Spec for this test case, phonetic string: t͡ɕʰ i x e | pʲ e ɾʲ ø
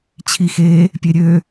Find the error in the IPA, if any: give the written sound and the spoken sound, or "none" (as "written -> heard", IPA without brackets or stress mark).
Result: none